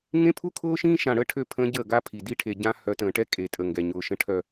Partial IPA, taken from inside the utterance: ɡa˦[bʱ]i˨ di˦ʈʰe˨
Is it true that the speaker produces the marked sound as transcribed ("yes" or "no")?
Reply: no